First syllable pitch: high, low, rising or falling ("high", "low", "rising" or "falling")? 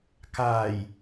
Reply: low